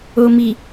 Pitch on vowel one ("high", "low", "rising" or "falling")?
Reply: low